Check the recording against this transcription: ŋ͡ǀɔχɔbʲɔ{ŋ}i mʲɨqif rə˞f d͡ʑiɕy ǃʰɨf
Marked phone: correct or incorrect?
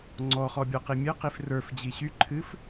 incorrect